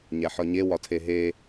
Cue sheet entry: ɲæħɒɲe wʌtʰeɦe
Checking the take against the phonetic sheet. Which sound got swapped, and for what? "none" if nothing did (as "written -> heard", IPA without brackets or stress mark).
ʌ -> ɒ